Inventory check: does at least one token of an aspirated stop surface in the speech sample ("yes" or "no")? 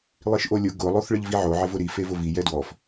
no